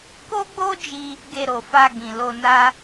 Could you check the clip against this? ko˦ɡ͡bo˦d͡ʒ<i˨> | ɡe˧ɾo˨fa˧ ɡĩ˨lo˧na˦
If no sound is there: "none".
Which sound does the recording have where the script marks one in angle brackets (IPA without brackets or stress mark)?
i˧